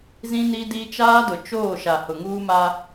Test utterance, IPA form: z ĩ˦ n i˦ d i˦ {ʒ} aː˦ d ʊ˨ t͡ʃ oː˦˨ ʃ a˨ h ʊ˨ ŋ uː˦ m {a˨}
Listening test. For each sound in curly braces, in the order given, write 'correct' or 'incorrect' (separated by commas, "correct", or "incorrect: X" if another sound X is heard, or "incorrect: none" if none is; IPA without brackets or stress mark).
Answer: incorrect: t͡ʃ, incorrect: a˦